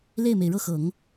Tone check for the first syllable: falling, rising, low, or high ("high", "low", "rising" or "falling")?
falling